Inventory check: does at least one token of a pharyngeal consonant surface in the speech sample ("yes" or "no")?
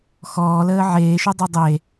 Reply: yes